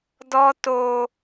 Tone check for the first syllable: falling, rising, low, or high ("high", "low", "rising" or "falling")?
high